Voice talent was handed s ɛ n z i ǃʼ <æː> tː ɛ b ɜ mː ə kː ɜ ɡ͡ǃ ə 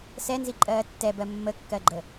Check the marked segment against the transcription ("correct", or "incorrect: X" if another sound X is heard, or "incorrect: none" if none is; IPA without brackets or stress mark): incorrect: ɜː